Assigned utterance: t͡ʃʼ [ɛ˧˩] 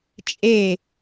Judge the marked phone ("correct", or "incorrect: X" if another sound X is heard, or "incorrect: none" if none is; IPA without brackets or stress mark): incorrect: e˧˩